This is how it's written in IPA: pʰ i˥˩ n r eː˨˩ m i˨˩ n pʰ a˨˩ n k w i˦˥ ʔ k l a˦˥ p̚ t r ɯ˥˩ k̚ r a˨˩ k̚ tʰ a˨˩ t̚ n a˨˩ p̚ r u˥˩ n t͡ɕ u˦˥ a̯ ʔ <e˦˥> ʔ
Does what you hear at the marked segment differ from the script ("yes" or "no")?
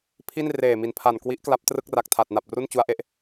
no